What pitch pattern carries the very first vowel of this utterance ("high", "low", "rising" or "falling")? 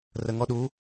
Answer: low